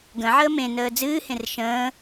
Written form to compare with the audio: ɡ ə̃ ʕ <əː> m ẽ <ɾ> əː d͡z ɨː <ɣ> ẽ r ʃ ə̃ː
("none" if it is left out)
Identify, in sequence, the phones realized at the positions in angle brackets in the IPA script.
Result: əː, n, h

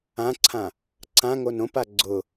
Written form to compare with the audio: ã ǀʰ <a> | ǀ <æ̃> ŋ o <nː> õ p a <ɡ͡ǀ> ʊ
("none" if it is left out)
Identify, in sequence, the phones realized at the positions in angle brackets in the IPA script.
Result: ã, ã, n, ɡ͡ǀ

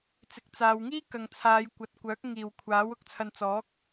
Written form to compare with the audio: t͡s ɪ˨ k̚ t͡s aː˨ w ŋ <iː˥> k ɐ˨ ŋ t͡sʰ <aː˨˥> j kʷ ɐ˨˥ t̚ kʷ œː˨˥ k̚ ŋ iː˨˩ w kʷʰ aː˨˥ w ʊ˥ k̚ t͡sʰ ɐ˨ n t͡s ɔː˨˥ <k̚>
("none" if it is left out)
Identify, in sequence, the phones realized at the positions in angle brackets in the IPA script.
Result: iː˥, aː˨˧, k̚

